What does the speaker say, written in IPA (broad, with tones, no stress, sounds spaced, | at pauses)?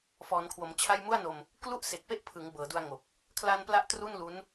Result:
f ɔː˩˦ n kʰ w o˩˦ m t͡ɕʰ a˥˩ j m u˥˩ a̯ n o˧ m | k l u˥˩ ʔ s e˨˩ k̚ p e˥˩ ʔ pʰ ɯ˩˦ ŋ b ɤː˩˦ d u˧ a̯ ŋ o˨˩ k̚ | kʰ l a˧ n p l a˦˥ ʔ t r u˥˩ n l u˦˥ n